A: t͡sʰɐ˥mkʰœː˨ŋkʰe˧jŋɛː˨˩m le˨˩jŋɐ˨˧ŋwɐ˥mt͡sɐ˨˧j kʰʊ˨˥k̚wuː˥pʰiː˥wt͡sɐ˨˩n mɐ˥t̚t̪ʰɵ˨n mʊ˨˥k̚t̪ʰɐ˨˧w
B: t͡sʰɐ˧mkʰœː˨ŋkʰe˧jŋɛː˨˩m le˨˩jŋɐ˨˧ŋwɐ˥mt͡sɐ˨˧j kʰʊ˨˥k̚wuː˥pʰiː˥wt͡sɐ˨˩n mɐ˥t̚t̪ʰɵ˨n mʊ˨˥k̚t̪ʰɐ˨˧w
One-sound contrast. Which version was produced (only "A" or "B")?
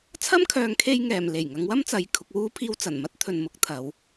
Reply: A